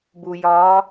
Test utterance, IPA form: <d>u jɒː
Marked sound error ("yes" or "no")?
yes